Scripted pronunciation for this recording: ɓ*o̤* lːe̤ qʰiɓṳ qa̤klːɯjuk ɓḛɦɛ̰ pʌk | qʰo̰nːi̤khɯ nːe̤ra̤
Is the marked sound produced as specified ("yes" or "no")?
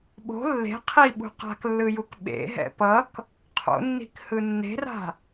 yes